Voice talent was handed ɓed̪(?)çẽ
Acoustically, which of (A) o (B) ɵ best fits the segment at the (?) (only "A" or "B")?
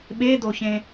A